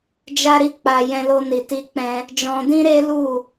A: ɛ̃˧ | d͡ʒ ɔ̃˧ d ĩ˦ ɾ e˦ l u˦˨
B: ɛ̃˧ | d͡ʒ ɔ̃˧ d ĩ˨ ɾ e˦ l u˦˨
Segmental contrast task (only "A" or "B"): A